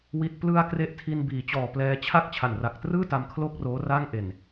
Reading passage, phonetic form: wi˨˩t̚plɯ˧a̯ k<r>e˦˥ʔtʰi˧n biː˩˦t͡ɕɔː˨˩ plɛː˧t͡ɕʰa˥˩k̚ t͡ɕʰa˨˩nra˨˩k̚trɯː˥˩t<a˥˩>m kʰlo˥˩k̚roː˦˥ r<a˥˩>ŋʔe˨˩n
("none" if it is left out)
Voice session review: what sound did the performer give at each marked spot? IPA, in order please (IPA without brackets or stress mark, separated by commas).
r, a˧, a˥˩